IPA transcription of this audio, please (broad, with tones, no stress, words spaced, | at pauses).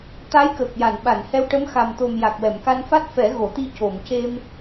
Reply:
t̪a˧˥jkəː˨˩k̚ja˨˩˨n ɓa˨˩˨nhɛ˧wʈə˧˥m xa˨˩mt̪o˨˩m ja˨˩k̚wɛ˨˩˨mka˧nfa˦˥t̚ fɛ˨˩˦ɣo˨˩˨t̪i˧ co˨˩˨mce˧m